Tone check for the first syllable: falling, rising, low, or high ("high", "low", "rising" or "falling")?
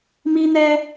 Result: high